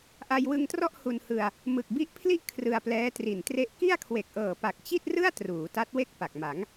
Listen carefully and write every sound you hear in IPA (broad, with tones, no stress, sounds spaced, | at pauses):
ʔ a˧ j w ɯ˧ ŋ t r ɔ˥˩ ʔ h u˧ n h ɯ˧ a̯ | m ɯ˨˩ k̚ b i˦˥ ʔ pʰ l i˥˩ ʔ kʰ r ɯ˧ a̯ p l ɛː˦˥ t r i˨˩ n t r e˥˩ ʔ k i˥˩ a̯ kʰ w e˨˩ k̚ ʔ ɤː˨˩ p a˨˩ k̚ t͡ɕ i˥˩ t̚ r ɯ˥˩ a̯ t r uː˩˦ t a˦˥ t̚ w e˥˩ k̚ p a˨˩ k̚ m a˩˦ ŋ